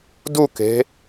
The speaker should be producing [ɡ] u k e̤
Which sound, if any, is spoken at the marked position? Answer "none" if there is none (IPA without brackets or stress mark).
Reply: d